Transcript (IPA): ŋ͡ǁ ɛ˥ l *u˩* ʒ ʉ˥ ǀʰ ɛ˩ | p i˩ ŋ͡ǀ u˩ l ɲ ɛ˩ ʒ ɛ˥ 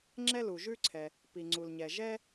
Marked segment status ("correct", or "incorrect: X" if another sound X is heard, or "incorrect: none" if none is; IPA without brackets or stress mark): correct